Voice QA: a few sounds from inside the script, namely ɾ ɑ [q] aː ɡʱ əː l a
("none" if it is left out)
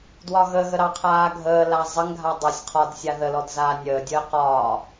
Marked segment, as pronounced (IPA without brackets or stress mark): qʰ